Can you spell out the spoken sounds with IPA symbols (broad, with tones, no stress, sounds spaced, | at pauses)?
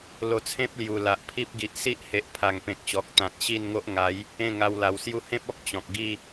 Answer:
l o˧ t͡sʰ ẽ˦ p̚ l j u˨˩ l a˨ ʔ pʰ i˦ p̚ ɡ i˨ ʔ s i˦ ʔ h e˨ ʔ pʰ a˨˩ ŋ p ẽ˨ k̚ ɕ ɔ˨ k̚ t̪ ã˨ t̚ ɕ i˥˧ n ŋ o˦ ʔ ŋ a˨˦ j | ẽ˥˧ ŋ a˧ w l a˨˩ w s j u˧ h ẽ˦ p̚ ɔ˦ k̚ t͡ɕ ɔ̃˨ k̚ ɡ i˥˧